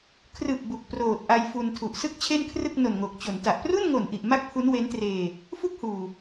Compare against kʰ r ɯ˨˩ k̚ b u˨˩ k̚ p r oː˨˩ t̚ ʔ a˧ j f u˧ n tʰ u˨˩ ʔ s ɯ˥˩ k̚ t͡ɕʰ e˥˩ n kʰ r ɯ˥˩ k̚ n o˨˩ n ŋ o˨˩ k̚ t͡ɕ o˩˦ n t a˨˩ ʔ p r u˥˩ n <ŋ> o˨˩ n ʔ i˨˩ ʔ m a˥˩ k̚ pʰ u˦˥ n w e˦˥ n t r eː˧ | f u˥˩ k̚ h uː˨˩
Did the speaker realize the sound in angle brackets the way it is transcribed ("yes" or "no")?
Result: yes